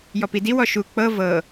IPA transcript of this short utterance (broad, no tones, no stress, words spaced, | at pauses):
jɔpidiw ɔʃu k͡pɤ vɤ